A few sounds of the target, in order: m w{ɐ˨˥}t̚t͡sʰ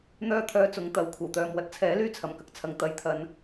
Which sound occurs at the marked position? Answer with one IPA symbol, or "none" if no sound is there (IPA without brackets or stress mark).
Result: ɐ˨